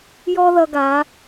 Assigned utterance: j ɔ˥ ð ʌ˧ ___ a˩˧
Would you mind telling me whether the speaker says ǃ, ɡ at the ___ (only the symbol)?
ɡ